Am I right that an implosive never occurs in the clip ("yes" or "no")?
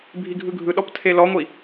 no